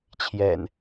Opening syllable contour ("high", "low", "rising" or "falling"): low